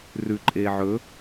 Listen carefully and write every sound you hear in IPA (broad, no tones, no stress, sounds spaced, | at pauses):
r ʉ ǃʼ eː ʕ ɵ